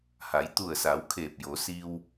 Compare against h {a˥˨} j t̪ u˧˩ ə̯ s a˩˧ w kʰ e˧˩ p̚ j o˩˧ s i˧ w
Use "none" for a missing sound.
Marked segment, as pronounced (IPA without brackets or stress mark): a˩˧